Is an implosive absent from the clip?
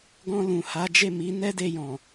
yes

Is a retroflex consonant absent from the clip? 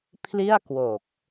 yes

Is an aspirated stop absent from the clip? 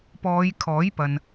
no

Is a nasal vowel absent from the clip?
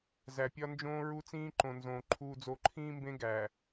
no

